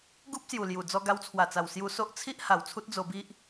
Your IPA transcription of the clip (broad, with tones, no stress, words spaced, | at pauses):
ɡu˦p̚sju˨˩lju˨˩ d͡zɔ˧ɡa˧wt͡sʰwa˨˩t͡sa˨˩w sju˧so˦ʔ t͡sʰi˦ʔ ha˨˩wt͡sʰu˦t̚ d͡zo˧bi˦ʔ